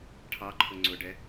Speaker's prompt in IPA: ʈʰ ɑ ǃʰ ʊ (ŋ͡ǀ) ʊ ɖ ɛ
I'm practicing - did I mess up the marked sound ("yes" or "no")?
no